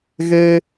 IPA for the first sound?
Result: ɣ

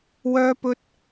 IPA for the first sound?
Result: w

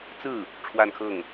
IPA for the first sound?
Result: t͡s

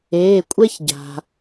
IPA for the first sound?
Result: eː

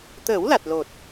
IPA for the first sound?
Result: t̪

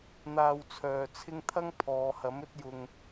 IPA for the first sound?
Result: n̪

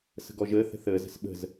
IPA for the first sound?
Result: s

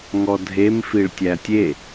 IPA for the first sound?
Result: ŋ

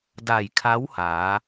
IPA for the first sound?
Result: d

